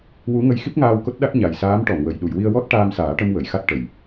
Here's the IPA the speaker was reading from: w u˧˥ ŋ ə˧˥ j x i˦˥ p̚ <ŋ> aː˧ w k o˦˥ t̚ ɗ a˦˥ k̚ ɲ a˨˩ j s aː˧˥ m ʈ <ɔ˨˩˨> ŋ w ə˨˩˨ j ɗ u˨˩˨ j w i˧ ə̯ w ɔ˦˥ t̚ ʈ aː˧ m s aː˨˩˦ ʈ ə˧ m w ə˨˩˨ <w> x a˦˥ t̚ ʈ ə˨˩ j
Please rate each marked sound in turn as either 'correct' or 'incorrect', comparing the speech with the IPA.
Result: correct, correct, incorrect: j

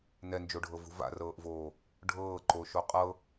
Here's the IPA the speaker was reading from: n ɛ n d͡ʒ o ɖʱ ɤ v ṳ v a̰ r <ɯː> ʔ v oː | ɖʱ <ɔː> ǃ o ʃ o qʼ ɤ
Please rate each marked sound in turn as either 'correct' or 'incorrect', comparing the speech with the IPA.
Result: incorrect: ɤː, incorrect: ɤː

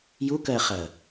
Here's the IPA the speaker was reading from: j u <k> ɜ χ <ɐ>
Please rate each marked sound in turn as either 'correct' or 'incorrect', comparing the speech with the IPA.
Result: correct, correct

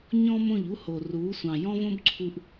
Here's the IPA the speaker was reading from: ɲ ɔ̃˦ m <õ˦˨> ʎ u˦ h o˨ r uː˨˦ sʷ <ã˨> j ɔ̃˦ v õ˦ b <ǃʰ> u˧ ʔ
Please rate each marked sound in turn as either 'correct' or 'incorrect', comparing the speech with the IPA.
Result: correct, incorrect: ɑ̃˨, incorrect: ǀʰ

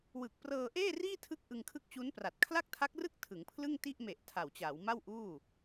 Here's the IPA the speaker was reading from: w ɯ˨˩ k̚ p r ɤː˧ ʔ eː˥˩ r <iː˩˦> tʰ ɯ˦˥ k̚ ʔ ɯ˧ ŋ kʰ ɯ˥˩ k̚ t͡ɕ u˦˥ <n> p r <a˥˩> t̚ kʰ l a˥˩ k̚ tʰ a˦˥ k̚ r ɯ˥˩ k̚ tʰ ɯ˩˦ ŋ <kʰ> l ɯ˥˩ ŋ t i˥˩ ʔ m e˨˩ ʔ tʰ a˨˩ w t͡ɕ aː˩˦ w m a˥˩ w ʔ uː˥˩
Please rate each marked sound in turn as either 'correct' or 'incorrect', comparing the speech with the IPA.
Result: incorrect: iː˥˩, correct, incorrect: a˨˩, incorrect: pʰ

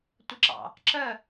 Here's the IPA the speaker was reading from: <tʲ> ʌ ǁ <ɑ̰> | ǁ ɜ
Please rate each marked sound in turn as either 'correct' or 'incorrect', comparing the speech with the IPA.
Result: incorrect: tʷ, correct

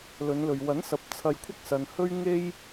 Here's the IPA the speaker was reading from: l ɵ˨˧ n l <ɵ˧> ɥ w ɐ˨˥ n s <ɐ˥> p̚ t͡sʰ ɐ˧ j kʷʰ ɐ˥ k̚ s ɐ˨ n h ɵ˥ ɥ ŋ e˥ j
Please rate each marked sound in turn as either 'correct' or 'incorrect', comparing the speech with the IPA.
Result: incorrect: ɵ˨, incorrect: ɐ˨˥

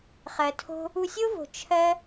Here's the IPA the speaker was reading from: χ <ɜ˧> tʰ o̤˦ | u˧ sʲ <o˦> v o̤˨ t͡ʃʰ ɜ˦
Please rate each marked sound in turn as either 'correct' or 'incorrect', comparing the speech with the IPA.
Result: incorrect: ɜ˨, correct

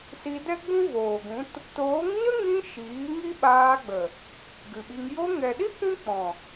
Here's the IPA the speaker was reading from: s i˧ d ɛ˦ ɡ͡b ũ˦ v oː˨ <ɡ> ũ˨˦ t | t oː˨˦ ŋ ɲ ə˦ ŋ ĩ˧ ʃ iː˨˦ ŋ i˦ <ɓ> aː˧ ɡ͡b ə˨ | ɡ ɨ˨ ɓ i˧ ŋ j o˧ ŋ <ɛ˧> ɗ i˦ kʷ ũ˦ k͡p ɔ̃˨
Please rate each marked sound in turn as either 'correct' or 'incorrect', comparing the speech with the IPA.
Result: correct, correct, incorrect: ɛ˨

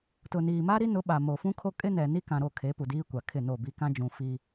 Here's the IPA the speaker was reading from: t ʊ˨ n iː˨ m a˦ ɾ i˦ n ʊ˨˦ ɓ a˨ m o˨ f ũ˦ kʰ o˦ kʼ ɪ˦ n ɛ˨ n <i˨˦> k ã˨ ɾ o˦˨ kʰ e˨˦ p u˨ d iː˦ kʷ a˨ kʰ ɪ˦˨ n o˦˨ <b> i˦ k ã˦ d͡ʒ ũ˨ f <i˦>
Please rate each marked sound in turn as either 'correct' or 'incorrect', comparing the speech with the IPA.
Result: incorrect: i˦, correct, correct

